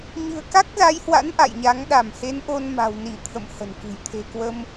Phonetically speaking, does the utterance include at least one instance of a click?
no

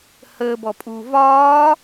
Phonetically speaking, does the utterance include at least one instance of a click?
no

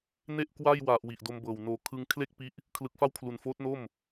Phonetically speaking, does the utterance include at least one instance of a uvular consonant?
no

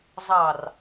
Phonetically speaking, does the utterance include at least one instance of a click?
no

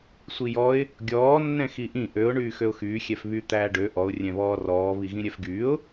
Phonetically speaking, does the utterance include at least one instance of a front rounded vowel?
yes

